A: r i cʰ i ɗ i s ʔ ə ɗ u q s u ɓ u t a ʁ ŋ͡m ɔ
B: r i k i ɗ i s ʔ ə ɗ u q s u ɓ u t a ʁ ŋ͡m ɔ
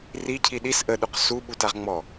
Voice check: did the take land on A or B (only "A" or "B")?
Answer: A